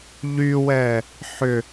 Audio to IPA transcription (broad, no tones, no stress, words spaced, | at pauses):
ʎywɛ | ħʏ